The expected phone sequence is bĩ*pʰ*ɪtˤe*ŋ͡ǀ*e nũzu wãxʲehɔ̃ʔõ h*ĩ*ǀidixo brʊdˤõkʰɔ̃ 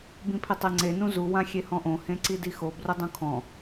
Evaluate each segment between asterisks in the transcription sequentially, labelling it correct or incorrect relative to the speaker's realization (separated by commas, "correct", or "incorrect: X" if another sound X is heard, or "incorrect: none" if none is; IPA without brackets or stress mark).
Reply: correct, correct, incorrect: ẽ